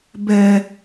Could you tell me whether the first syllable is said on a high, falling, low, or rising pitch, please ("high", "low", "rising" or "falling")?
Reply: high